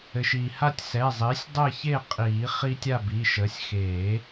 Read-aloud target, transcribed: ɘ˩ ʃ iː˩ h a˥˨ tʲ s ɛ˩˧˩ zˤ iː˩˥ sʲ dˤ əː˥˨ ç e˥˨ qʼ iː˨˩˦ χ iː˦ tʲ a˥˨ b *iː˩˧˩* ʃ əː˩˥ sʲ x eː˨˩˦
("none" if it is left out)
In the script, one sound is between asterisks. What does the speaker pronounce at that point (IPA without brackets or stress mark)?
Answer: iː˩˧˩